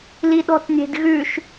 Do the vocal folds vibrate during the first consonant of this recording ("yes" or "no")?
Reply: yes